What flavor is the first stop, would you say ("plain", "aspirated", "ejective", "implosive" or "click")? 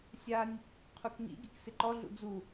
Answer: aspirated